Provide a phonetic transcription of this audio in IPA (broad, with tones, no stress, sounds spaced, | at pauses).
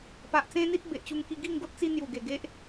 p a˨ ʔ t͡s ẽ˦ n̪ i˦ t̚ b e˨ ʔ t͡ɕ u˧ ŋ k i˧ ɡ i˥˧ ŋ ɡ o˦ t̚ t͡s i˦ n̪ j u˨˩ ɡ e˨˩ ɡ e˦ ʔ